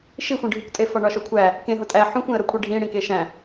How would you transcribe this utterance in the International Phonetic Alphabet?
ʃixʷĩɖʱukʷtʼe fɒɳɒʃokʷʰæ | kẽɦo tʼæ ħũxʷẽə̯ɾokʷʰi ɖʱĩɽĩ keʃæ̃

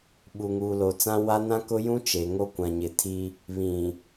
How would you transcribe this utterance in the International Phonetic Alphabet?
ɓu˨ŋuː˨lo˨t͡sã˦ wa˦ nã˦kʊ˦jũ˦ t͡ʃe˨ŋo˦ kʷã˨ɲɪ˨tʰi˦ | βĩ˨

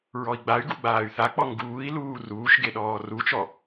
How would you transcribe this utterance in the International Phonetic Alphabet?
ɹɔi̯ɡ͡bay̯ɡu ɡ͡baːy̯θak͡pɔ ŋɡuːi̯luː ruːʃɡe ɗɔːrut͡ʃɔ

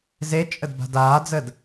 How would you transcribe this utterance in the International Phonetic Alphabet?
zet͡ʃʼəd ba̤daːd͡zəd

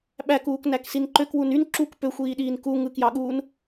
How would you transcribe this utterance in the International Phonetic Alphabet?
ɓækuːk næksinǃøkwun yn ǁuk pøxʷiːɗiːn ku ŋɯkjɑɠuːn

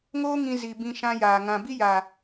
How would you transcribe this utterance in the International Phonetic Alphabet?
ŋoː˦ŋĩ˧ zi˨ bĩ˧ʃã˧jaː˨ ŋã˨bi˦jaː˨

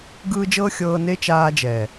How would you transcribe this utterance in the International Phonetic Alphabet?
ɡɯː˧ d͡ʒɤ˦xʲɤː˧ ne˦ t͡ʃaː˧d͡ʒɛ˨

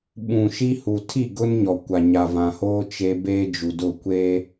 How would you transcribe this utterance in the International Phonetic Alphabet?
ɓũ˨ʃi˦ hu˨tʰi˦˨ ɡʊ˦nɲɔ˨kʷa˨ ɲa˨vã˨hoː˦ t͡ʃe˦ beː˦d͡ʒu˨dʊ˦˨ kʷeː˦

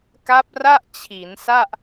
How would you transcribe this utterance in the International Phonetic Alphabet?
ka˦˥p̚ra˥˩ʔ t͡ɕʰi˩˦nsa˥˩ʔ

